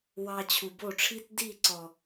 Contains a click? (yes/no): yes